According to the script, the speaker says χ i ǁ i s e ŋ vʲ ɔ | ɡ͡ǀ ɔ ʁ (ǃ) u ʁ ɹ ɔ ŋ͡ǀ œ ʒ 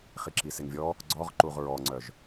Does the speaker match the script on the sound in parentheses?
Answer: yes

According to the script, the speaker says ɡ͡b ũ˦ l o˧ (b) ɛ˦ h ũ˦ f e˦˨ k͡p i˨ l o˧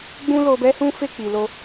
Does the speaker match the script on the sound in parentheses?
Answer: yes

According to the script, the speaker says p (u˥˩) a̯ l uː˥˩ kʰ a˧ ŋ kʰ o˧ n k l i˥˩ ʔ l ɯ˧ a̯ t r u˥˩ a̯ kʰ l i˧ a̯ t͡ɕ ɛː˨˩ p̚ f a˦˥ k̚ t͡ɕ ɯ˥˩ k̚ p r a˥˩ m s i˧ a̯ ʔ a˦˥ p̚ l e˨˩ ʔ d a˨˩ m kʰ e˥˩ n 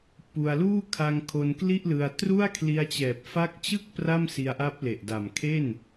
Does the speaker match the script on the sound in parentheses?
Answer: no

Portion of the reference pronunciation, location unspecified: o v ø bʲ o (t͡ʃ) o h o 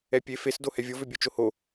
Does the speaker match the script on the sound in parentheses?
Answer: yes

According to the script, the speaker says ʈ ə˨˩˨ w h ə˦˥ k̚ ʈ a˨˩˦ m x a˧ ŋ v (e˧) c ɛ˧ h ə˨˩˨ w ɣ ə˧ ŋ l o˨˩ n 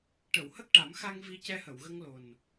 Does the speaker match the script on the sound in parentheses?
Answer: no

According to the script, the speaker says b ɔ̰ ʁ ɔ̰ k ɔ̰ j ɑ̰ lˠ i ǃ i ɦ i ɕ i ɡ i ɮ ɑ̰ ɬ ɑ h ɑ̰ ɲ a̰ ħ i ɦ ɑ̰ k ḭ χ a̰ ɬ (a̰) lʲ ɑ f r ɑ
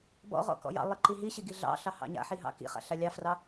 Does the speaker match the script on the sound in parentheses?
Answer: no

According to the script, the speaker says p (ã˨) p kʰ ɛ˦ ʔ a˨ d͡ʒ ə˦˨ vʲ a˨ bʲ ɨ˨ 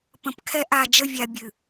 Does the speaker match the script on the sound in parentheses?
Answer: no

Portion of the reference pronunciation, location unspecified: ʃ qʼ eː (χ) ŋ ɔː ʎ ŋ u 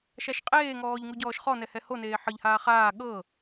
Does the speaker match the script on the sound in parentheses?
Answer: no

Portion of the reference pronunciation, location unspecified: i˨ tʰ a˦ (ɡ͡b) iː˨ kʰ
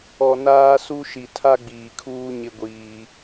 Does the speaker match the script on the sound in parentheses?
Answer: yes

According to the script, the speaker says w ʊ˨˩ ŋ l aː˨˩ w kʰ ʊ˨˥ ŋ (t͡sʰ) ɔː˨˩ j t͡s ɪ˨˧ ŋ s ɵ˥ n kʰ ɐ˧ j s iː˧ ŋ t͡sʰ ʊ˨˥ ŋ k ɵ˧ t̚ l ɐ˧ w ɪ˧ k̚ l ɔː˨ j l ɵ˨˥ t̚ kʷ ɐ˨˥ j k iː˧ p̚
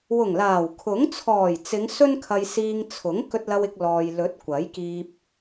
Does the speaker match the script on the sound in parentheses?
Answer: yes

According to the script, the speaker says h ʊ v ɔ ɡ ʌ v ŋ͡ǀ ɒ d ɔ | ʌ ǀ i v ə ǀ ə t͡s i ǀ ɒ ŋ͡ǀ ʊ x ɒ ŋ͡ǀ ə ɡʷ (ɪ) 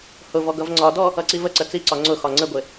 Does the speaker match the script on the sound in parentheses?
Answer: yes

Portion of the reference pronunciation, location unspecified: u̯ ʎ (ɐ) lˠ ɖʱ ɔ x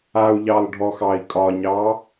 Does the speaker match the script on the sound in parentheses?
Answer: no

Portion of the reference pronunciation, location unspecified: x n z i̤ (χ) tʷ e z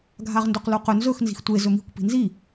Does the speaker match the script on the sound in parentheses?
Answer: no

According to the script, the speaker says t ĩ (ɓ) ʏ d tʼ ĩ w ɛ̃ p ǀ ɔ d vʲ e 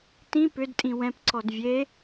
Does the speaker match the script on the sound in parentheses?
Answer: no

